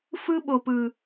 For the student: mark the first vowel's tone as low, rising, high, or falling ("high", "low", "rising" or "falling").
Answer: high